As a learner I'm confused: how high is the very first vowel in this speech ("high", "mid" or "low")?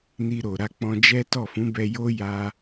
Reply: high